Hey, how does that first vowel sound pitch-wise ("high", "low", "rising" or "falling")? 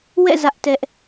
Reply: falling